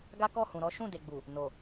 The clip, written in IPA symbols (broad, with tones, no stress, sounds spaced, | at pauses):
ɡ a˦ k ɔ˦˨ h ũ˨ ɾ ɔ˨˦ ʃ ũ˦˨ d e˨ ɡ͡b u˨ | n o˨